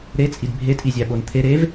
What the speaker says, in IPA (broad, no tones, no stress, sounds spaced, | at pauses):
ɾ e t͡sʼ i d bʱ e tʼ i zʲ æ ɓ o n t̪ʰ e ɾ e v